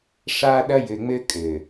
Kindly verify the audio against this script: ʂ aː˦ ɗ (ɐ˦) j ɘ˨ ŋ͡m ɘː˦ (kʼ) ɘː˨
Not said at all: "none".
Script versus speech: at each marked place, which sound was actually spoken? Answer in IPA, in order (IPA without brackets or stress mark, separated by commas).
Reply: ɐ˦, kʼ